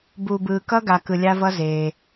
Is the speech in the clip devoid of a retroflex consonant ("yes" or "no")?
yes